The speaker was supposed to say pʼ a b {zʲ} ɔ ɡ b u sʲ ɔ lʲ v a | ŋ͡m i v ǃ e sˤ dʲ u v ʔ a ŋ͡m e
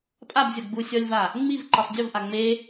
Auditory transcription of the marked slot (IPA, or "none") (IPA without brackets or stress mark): zʲ